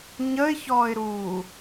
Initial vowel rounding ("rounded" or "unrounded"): unrounded